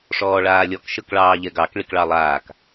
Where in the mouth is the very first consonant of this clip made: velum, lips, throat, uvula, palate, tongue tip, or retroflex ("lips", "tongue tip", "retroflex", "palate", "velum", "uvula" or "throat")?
retroflex